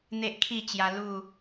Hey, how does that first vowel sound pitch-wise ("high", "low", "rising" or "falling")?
high